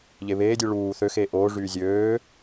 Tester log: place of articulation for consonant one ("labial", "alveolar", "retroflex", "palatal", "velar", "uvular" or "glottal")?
palatal